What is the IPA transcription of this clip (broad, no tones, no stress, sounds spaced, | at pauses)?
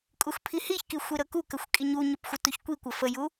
kʼ u x pʰ i h i ç k i xʷ i ɾ ɤ k u k ə xʷ kʼ i ɲ u ɲ ə p xʷ ə t u ç kʷ i kʷ ə f ə j u